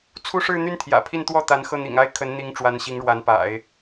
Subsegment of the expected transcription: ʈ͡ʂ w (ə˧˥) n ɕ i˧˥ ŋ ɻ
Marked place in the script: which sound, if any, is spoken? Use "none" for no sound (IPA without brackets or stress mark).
a˧˥